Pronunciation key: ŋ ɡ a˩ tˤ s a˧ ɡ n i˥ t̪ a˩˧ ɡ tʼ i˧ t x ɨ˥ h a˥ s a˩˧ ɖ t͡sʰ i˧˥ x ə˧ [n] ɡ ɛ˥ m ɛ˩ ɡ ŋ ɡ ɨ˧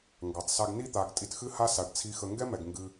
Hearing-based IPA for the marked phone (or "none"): ŋ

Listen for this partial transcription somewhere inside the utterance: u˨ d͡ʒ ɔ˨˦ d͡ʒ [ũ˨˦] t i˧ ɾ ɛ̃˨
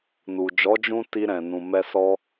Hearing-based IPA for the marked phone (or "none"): ũ˧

